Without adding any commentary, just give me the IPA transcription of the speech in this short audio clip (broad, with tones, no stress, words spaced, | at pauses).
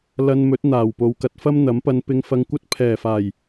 lɐ˧nmɵ˨˥t̚n̪aː˨˩w po˨wkɐ˧t̚fɐ˥m n̪ɐ˨˥mpɐ˧n pɪ˧ŋfɐ˧ŋkʷɐ˥t̚ pʰɛː˨˩faː˨˩j